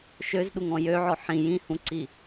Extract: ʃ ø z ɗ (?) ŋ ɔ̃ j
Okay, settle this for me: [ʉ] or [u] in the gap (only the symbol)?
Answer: u